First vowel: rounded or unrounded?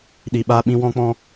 unrounded